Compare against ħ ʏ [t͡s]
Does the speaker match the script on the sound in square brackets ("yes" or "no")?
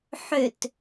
no